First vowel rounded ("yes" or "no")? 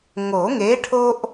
yes